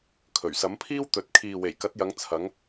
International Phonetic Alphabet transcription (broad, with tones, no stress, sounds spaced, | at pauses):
kʰ ɵ˨˩ ɥ s ɐ˨˥ m pʰ iː˥ w t̪ ɵ˨ t̚ kʰ iː˨ w e˨˩ j k ɐ˨˥ t̚ j ɐ˨˧ ŋ t͡sʰ ɐ˨˧ ŋ